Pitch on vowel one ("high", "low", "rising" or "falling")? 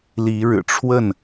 rising